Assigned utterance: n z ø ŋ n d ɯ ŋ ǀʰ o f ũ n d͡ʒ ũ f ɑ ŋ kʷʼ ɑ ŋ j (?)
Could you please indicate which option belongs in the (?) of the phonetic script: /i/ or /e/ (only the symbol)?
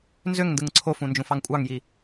i